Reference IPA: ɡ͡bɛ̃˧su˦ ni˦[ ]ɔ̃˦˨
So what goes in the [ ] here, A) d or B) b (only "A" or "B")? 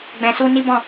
B